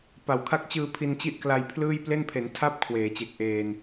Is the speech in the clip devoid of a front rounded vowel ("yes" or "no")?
yes